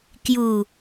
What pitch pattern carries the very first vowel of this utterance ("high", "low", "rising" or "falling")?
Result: low